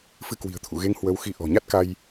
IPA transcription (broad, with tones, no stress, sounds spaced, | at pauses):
f ɨ˧ k w i̤˨˩ ə̯ t̪ʰ ṵ˧˨ ɣ e˧ ŋ h w ə˧ w x i˧ ʔ ɔ̤˨˩ ɲ a˦˥ t̚ k a˧ j